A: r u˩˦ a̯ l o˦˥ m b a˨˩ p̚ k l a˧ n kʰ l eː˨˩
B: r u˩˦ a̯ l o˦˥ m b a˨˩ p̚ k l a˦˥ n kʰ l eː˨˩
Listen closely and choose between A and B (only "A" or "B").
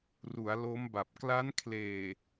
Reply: B